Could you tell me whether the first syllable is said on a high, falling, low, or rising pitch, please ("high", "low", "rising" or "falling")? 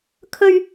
high